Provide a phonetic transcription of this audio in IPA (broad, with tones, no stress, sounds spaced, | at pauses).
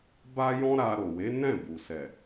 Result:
b a˦ j ɔ̃˦ ɾ a˧ ɾ o˨ w e˨˦ n ɛ̃˦˨ b u˨ s ɛ˨